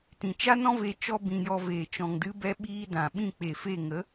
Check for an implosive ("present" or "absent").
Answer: present